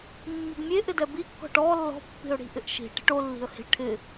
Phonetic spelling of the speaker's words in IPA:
mː i̤ ɡ mʲ e ʔ ɪ d ɛ b i kː ɔ̤ ʈ ɔ lː ɔ̤ pː i̤ ʊ̯ ɽ i̤ ʔ ɪ ʔ ʃ i̤ ʈ i̤ ʈ o lː i̤ ə̯ h i̤ ʈʰ ɪ

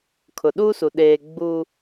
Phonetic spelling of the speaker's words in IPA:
kʰ ʊ˨ ɗ uː˦ s u˨ ɗ eː˦ ɡ͡b u˦

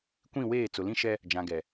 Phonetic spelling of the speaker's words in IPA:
kʷ ĩ˦˨ w eː˦˨ t͡s ʊ˨ l ĩ˦ ʃ ɛ˦ | d͡ʒ ã˨ ɡ ɛ˨

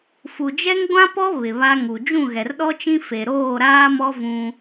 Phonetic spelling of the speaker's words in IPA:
f u˨ d͡ʒ ɛ˦ ŋ ɡʷ ã˦ p ɔ˦ β ɪ˨ β a˦ ŋ u˨ d͡ʒ ũ˦˨ ɣ ɛ˨ r ɗ ɔ˦ t͡ʃ ĩ˦ f e˨ ɾ oː˦˨ ɾ aː˦ m ɔ˦ v ũ˦

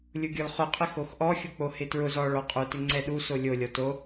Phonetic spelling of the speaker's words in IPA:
lʲ ʊ ɡʲ ɔ l χ ʊ qʼ ɪ x o x ʔ ɔ xʲ ʊ k͡p o h ɪ t ɹ ʊ z ɔ ɭ ɔ qʼ u t ɪ ŋ͡ǀ ɛ ɗ u s o lʲ o lʲ ɔ t o

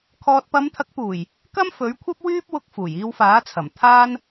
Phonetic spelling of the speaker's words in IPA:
kʰ ɔː˨ t̚ p ɐ˨˧ m t̪ʰ ɐ˨˥ k̚ p uː˨˩ j | k ɐ˥ m f ɵ˨˥ ɥ kʷʰ ɐ˥ p̚ w yː˥ p̚ w ʊ˧ k̚ f uː˨˩ j iː˧ w f aː˨˥ t͡sʰ ɐ˨˩ m t̪ʰ aː˥ n

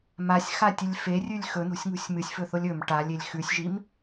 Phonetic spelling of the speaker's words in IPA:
m a sʲ x a tʲ e lʲ f e rʲ ʉ lʲ x ɵ n̪ o̤ sʲ ŋ ṳ sʲ m ɨ sʲ f ɵ θ o lʲ ɵ m ʈ a lʲ e lʲ x ʉ sʲ ʒ i m

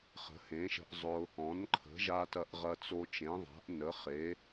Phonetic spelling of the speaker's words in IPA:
χ ə̤˩˥ h ẽ˩˥ ʃ ə̤˧ ʔ zˤ ʊ˧ | ɔ̃˩˥ n ǃʰ ə̤˩˥ ʒ a˧ t ɐ˧ ʔ ʁ ɐ˧ t͡s o˧ t͡ʃ ẽ˩˥ ðˤ a̤˩˥ ʔ n ə˩˥ χ e˩˥

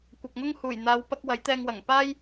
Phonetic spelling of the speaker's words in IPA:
kʷ ɐ˨ k̚ ŋ ʊ˥ ŋ h uː˨˩ j n̪ aː˨˧ w p ɐ˧ k̚ w ɐ˨˥ j t̪ ɛː˧ ŋ w ɐ˨˩ ŋ p aː˥ j

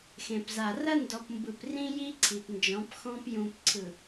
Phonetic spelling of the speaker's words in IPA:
x ẽ˨ p z a˨ r ɐ˦ n d ɔ˨ p m b ɯ˨ p r ĩ˦ j i˦ ǀʰ i˨ p n d͡ʒ ɔ̃˨˦ p x ɔ̃˦ p j ũ˨ p ǀʰ ɯ˨

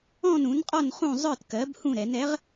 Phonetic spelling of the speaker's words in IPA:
ɔ̃˥˧ n ũ˨˥ n qʼ ɔ˥˧ n χ ũ˥˧ zˤ ə˞˥˧ t k ɜ˨˥ b h ũ˥˧ ɾ ɛ˨˥ n ɛ˨˥ ʁ

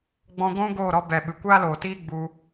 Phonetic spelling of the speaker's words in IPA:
ɡ͡b ɔ̃˧ ɡʷ ũ˦ ɡ oː˦˨ ɾ ɔ˧ b ɛ˨ ɓ ɨ˨ kʷ aː˦ l oː˨ t iː˦ ɡ͡b u˧

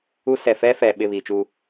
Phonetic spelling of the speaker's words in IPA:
u˦ s ɛ˨ f ɛ˦ f ɛ˨ ɓ ɪ˦˨ β iː˨ t͡ʃ u˦

